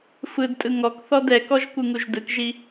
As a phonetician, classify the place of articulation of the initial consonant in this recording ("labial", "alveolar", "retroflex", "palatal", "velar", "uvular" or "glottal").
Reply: labial